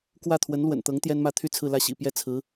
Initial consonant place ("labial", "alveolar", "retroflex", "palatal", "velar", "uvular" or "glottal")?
velar